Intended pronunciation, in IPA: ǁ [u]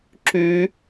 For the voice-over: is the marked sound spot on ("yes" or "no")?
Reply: no